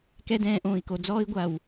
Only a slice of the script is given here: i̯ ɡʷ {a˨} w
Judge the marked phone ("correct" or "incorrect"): correct